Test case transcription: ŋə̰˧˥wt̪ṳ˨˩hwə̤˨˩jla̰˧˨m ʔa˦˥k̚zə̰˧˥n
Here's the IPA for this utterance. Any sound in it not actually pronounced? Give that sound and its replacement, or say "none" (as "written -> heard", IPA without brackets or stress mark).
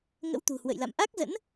ə̤˨˩ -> ə̰˧˨